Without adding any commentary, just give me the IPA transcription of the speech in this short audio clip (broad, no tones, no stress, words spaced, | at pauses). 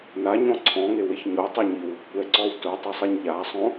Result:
naɲɔ̃ ǀʰɔ̃ŋeweç ɲotˤɛɲiw | kʷɛǀɔw tʊtˤusˤiɲ ʎasˤõ